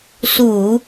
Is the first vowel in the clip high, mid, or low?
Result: high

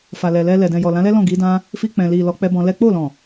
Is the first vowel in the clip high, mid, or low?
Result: low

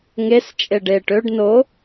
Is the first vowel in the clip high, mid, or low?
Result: mid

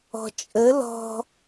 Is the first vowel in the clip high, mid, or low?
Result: mid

